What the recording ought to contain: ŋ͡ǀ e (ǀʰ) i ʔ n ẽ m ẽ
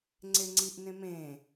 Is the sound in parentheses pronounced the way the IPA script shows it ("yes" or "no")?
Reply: no